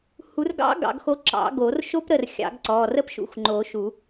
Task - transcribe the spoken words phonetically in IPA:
h u˨˩˦ r ɡ ɑ̰˧˥ ɡ ɑ̰˨˩˦ ɡ x o˧˥ ǁ ɑ̰˨˩˦ ɡ o˨˩˦ r ʃ o˥ p ɾ ə˥˩ r xʲ ɑ̰˨˩˦ ɡ ǀ ɔ˩˧˩ r ə˥ p ʃ ṵ˩˧˩ x ŋ͡ǃ o˨˩˦ ʃ u˨˩˦

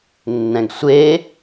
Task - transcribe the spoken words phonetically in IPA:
nː ɛ̃ ɡ sʷ e

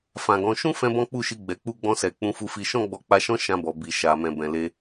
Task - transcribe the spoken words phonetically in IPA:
f ã˨ ɡ ɔ̃˨˦ ʃ ũ˦ f ɛ̃˦ b ɔ̃˦ k͡p u˦˨ ʃ i˧ ɡ͡b ɛ˨ k͡p u˧ ɡ͡b ɔ̃˧ s ɛ˨ k͡p ũ˧ f u˧ f i˧ ʃ ɔ̃˦ ɡ͡b ɔ˧ k͡p a˧ ʃ ɔ̃˦ ʃ ã˧ b ɔ˨ b i˨ ʃ a˨ m ɛ̃˨ b ɛ̃˨ l e˧

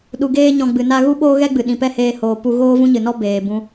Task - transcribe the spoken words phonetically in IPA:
ɗ u˨ ɡ eː˧ ɲ ɔ̃˨ ɡ͡b ɨ˨ n a˦ ɣ u˦ ɓ oː˦ ɣ ɛ˦ ɡ͡b ɨ˨ ɗ ĩ˨ p ɛ˦ h eː˧ h oː˨ p u˧ ɣ oː˦ v ũ˦ ɲ ɨ˨ n ɔ˦ b eː˨ b ũ˧

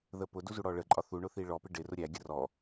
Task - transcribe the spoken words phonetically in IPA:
ð ə p ʊ d u z u ɽ ɔ ɭ ə ǃʼ ɒ θ u ɳ ʊ θ i ɭ ɔ p ɪ ɖ ɪ r ʊ ɾʲ æ ɡʲ ə r ɔ

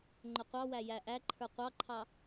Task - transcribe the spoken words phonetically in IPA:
ŋ͡ǃ ʊ qʷ ɑ w æ j æ ʔ æ ǃʰ ə˞ qʷ ɑ ǃʰ ɑ

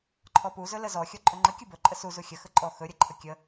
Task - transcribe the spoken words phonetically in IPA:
ǃʰ ɔ p u z ɵ l ə z ɔ xʲ ɔ ǃʼ ɵ ŋ͡ǃ ə kʲ u b ɵ ǃʼ ə s u z u xʲ ə x ə ǃʼ ɔ x ɵ ɾʲ ə ǃʰ ə kʲ ə

